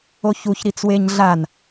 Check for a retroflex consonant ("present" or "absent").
absent